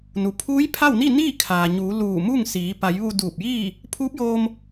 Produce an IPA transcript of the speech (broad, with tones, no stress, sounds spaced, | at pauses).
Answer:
n u˩ pʰ uː˧˥ j pʰ a˥˨ w n i˥˨ n iː˥˨ kʰ aː˩ ɲ uː˩˧ l uː˧˩ m u˥˨ ŋ s iː˩˧ p a˩˧ j ʋ u˧ d uː˧˩ p̚ j iː˥˨ | pʰ uː˧˥ p̚ j oː˧ m